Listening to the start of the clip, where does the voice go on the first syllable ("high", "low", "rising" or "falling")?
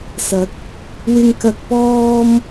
rising